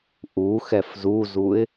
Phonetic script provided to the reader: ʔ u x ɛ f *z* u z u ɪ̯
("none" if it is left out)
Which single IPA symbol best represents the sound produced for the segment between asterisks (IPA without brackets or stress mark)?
z